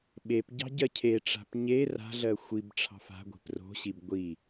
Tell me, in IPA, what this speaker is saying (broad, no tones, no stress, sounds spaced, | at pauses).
ɓ e p ɟ ɑ̤ ɟ ɜ cʰ e ʈ͡ʂ a̤ p ɲ e r a̤ ɮ ɜ xʷ i b ʈ͡ʂʰ ɑ̤ f a̤ ɡʷ e̤ p r o̤ ɕ i b ɡʷ i